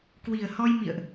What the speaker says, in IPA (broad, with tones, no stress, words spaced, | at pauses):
kwi˨˩ə̯hɔ˧j mḭ˧˨ə̯ʔ